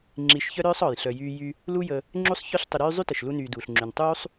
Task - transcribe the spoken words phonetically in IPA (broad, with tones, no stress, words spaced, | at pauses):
ŋ͡ǁi˨ʃçœ˥ɾœː˥sˤ ɔ˩j ɬœ˨jyː˦jy˦ | lu˦jə˨ | ŋ͡ǁu˥sˤçœ˥ɬ tˤʏ˨ɾyː˦ zˤy˥tə˩ʃ lu˦nyː˨duː˩ɬŋ͡ǁy˩n tˤuː˥sˤ